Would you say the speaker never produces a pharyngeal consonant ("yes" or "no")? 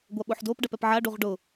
no